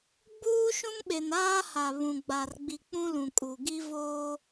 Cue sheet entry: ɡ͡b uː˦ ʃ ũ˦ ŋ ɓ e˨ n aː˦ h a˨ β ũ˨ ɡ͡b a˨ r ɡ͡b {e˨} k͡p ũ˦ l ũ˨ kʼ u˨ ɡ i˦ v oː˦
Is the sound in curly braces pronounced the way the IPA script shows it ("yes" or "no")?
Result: no